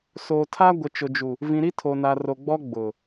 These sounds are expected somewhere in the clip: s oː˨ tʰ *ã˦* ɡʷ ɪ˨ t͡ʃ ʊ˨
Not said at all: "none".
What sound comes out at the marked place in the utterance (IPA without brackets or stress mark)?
a˦